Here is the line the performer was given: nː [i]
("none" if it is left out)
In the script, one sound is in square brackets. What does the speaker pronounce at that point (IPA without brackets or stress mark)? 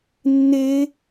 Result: e